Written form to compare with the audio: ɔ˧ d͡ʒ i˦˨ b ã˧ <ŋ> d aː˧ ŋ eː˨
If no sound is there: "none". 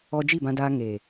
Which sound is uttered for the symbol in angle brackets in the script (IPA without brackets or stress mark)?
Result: none